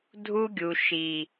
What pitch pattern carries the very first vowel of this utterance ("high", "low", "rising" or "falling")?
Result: high